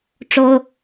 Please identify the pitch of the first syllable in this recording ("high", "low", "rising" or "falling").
high